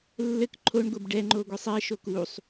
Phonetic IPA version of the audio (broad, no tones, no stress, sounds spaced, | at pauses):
lː ɘ k ǃʰ o ɳ ɡʷ ɛ b ɖ ɛ ŋ͡ǃ o ɡʷ e sˤ ɛ ʃ o k u sˤ